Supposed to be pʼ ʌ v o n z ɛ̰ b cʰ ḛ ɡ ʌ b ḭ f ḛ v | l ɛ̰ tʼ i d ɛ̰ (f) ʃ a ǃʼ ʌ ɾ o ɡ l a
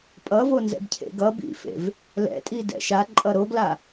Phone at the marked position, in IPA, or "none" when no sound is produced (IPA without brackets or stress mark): none